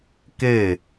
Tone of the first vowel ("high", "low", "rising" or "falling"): falling